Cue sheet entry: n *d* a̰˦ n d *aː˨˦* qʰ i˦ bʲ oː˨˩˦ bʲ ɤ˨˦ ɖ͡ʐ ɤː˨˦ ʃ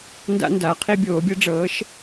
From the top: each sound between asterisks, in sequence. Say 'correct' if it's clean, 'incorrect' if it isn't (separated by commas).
correct, correct